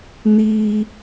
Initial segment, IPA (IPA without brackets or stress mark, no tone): n